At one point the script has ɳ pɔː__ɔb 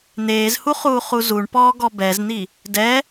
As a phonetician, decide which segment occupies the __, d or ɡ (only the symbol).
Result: ɡ